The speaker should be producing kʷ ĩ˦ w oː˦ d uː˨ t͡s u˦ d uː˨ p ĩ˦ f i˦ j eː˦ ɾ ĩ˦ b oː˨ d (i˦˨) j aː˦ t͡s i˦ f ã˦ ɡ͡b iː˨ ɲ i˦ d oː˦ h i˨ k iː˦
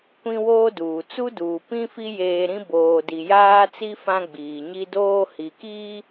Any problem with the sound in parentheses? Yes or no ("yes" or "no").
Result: yes